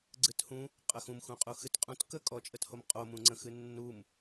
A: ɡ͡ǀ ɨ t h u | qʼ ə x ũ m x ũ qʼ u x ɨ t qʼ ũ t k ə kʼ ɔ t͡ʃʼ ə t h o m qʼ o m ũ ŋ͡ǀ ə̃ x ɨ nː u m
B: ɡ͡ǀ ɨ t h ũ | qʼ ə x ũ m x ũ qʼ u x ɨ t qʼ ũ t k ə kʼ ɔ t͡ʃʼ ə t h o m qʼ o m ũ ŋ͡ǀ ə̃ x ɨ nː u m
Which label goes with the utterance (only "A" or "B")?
B